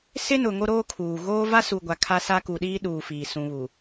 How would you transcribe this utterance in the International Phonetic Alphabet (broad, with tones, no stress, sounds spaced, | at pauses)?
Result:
s ɪ˦ n ʊ˨ ŋ o˦ ɾ oː˦ kʰ uː˨ ɣ oː˦ v a˦ s u˨ ɡʷ a˨ kʰ a˦ s a˦ k u˨ ɗ iː˦ ɗ uː˨ f iː˨ s ũ˨ β u˨